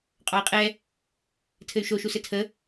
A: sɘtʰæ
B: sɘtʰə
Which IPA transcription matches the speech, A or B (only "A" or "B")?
B